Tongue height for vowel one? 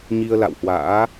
high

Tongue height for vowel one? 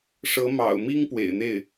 mid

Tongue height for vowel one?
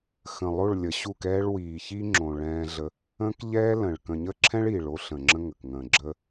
mid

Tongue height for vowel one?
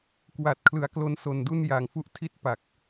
low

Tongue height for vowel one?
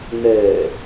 mid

